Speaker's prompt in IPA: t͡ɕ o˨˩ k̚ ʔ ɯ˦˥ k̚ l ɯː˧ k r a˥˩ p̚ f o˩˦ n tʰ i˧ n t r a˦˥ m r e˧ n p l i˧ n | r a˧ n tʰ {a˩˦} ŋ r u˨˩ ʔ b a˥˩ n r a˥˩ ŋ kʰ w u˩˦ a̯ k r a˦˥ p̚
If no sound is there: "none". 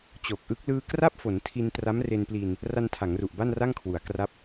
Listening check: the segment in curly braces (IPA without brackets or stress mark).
a˩˦